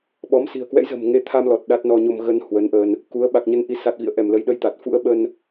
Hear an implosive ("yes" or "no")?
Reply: yes